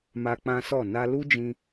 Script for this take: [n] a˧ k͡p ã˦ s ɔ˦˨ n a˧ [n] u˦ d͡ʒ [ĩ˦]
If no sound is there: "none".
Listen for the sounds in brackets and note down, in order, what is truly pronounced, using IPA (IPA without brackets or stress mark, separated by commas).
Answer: m, l, ĩ˧